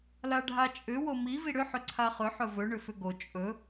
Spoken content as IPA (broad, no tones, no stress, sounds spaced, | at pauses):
l a ɖʱ a t͡ʃʼ ʏ w o m i v i ɽ ʏ ħ ʏ ǀʰ a χ ɵ ħ ɵ v ɵ ɳ ʏ f ʏ ɡ o t͡ʃʼ ɵ